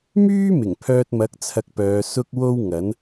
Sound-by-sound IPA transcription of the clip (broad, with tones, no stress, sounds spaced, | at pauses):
m yː˥ m ɪ˨˩ ŋ pʰ œː˧ t̚ m ɐ˨˥ k̚ t͡sʰ ɐ˧ k̚ p œː˨˧ s ʊ˥ k̚ w o˥ w ŋ ɐ˨˥ n